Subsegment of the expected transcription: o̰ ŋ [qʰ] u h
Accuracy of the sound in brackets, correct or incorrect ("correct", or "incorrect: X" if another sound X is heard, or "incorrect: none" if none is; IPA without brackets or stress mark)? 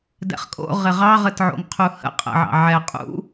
correct